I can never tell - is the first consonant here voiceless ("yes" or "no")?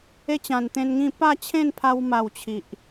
yes